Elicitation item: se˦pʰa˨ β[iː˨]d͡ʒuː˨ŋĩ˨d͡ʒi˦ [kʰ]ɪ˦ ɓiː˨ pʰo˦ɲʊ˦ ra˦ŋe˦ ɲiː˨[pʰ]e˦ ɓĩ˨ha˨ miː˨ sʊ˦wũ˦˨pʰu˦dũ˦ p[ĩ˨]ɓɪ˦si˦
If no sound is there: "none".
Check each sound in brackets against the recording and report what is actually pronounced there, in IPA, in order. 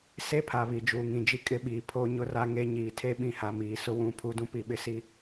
i˨, kʼ, tʰ, i˨

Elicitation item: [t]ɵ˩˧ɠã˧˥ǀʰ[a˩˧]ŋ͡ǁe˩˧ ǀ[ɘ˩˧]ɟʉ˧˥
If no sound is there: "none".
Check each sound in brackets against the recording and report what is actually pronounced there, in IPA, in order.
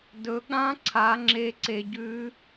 d, a˩˧, e˩˧

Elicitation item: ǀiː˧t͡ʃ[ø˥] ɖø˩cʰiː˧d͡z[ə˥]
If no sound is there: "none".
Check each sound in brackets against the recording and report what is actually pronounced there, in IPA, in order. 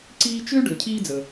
ø˥, ə˩

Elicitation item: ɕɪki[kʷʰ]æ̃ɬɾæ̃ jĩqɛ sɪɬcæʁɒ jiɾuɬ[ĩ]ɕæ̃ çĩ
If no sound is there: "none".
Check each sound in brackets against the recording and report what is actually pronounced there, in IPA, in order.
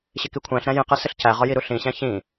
kʷʰ, ĩ

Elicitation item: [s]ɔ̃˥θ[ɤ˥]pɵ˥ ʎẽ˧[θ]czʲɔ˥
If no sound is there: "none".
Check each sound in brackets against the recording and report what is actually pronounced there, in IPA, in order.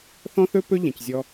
θ, ɵ˥, none

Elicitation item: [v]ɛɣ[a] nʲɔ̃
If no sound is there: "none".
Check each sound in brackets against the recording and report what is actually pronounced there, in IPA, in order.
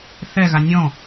θ, a

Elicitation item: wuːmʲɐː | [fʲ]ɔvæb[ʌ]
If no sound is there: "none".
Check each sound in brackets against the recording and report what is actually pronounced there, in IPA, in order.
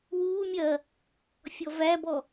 fʲ, ɔ

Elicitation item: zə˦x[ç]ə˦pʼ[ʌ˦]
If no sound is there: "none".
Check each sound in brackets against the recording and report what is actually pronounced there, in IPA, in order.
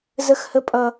h, ʌ˦

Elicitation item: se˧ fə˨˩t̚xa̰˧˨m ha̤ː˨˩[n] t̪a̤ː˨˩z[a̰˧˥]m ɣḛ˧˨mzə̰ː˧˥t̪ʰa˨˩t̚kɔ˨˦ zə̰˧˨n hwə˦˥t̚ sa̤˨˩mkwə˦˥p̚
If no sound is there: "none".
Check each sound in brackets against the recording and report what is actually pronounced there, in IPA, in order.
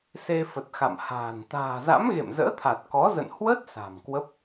n, a̰˧˥

